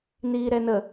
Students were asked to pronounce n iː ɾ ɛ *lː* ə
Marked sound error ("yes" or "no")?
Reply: yes